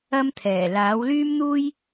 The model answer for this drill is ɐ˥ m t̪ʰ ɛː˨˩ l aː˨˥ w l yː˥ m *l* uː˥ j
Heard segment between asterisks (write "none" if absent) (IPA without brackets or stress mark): n̪